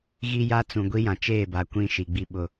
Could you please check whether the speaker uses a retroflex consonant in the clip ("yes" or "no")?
no